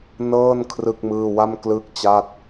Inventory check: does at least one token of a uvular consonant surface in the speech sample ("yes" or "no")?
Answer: no